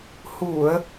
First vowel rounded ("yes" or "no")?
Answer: yes